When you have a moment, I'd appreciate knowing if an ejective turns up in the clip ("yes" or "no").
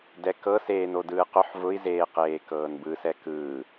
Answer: no